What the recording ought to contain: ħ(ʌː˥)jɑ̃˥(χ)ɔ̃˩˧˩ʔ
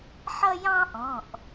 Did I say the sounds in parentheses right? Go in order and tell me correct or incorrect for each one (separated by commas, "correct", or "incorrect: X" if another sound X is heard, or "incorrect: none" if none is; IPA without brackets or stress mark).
incorrect: ʌ˥, incorrect: ʔ